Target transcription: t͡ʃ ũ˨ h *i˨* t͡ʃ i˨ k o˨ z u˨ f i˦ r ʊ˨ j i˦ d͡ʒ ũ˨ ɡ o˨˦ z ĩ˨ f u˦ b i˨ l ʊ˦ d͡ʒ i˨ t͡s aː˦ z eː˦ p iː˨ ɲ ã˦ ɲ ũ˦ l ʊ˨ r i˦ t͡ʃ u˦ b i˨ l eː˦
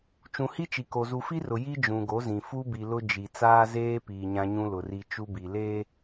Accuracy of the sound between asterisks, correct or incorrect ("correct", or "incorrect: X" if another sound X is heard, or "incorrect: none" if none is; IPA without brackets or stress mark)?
incorrect: i˦